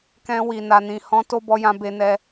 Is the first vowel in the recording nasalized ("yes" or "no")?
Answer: yes